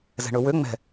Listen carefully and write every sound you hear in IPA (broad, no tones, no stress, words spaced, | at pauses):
zɛ̤ɳɵwø ŋ͡mɛ̤